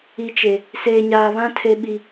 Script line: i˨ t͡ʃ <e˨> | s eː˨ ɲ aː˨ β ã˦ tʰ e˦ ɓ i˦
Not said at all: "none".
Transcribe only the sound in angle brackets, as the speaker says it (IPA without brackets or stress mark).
e˨